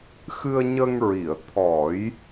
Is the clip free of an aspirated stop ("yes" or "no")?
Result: no